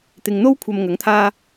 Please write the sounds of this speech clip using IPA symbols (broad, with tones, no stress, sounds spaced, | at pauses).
t̪ ɪ˨ ŋ n̪ o˥ w kʷʰ ɐ˧ m ŋ ɐ˨˥ ŋ t̪ʰ aː˥